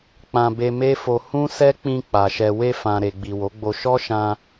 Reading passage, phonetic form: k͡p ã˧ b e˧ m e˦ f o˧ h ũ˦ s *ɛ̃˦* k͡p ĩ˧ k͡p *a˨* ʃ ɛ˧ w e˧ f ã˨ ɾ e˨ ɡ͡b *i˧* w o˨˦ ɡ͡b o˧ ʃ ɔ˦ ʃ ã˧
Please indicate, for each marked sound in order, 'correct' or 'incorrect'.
incorrect, correct, incorrect

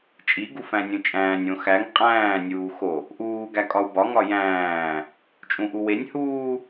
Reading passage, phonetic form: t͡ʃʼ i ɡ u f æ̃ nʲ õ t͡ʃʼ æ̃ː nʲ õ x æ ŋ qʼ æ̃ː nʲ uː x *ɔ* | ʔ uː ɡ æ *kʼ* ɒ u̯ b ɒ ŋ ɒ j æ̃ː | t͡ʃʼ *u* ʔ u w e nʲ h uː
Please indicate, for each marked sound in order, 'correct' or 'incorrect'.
incorrect, correct, incorrect

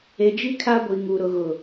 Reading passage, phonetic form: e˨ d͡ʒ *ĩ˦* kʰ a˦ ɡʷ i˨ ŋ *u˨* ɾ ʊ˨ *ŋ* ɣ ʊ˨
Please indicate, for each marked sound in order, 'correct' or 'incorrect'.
incorrect, correct, incorrect

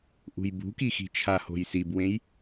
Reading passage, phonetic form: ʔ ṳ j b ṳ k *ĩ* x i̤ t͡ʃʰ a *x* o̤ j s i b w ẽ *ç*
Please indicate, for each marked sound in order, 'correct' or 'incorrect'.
incorrect, incorrect, incorrect

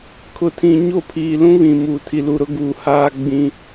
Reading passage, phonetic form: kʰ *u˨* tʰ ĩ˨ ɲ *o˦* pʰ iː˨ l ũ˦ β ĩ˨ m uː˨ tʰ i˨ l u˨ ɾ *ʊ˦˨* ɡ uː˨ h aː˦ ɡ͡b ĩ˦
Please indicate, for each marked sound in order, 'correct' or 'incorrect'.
incorrect, incorrect, incorrect

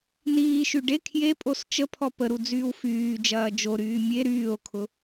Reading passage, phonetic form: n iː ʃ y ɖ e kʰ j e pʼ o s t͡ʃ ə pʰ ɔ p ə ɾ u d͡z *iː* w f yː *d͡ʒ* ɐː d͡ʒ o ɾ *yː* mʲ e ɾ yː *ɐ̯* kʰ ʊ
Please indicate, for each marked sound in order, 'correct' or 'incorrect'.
incorrect, correct, correct, incorrect

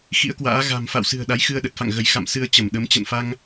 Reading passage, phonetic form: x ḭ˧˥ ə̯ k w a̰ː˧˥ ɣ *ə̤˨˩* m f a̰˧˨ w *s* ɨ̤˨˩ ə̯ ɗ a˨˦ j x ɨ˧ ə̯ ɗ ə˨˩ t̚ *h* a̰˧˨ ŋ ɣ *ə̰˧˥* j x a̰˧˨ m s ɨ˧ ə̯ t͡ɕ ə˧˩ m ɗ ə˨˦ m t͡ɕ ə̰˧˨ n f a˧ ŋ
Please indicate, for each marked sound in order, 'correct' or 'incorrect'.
incorrect, correct, incorrect, incorrect

